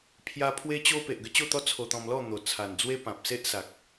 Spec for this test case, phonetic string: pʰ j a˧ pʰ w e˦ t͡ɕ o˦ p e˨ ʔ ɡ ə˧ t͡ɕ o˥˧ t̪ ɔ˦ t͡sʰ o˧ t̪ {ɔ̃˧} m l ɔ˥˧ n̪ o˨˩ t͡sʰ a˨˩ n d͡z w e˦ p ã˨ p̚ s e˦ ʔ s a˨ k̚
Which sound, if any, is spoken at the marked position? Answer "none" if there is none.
ɔ̃˧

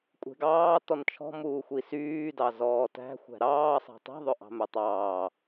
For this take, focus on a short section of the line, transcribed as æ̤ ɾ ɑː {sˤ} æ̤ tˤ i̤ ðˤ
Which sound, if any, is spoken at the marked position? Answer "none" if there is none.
sˤ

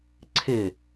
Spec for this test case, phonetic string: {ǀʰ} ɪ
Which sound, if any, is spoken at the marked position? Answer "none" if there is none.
ǀʰ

